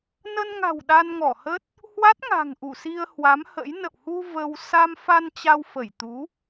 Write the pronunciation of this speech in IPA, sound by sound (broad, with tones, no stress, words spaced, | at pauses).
nə˧nŋa̤˨˩w ɗa˧nŋɔ˧˩hə˦˥t̚ | hwa˦˥t̚ŋa̤˨˩ŋ ʔu˧˩si˧ə̯hwa˨˦mhə̰˧˥j nə̰˧˨whu˧ və˧w sa˧mfa˧n t͡ɕa˧wfə˧˩jt̪u˨˦